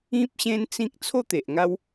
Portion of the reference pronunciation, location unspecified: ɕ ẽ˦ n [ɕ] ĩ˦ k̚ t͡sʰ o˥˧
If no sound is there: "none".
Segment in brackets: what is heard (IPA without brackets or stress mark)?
t͡s